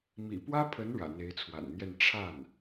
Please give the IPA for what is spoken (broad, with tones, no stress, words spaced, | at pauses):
mḭ˨˩pwä˥pʰə˧˥n ɻä̰˨˩n̪e˧˥ɪ̯t͡sʰwa̰˨˩nn̪jɛ˥˧n ʈ͡ʂʰa˥˩n